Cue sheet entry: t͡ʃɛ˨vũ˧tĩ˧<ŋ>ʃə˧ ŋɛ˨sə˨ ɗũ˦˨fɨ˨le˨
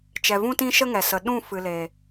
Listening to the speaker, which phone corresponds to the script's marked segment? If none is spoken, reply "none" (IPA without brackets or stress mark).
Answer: none